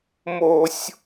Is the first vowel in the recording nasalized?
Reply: no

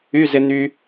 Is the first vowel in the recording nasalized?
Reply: no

